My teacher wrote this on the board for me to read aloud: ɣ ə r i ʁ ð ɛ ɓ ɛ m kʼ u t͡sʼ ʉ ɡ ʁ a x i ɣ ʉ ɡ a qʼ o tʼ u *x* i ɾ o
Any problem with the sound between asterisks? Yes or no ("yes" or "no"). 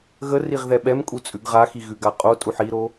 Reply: yes